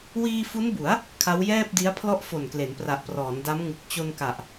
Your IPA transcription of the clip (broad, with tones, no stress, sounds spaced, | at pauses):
w iː˧ f u˦˥ n b u˩˦ a̯ | kʰ a˦˥ w j ɛː˥˩ p̚ d i˦˥ a̯ pʰ l ɔ˥˩ ʔ f o˨˩ n k l e˩˦ n p r a˨˩ ʔ p r ɔː˩˦ n d a˦˥ m ŋ ɯ˨˩ k̚ t͡ɕ o˧ n k a˨˩ ʔ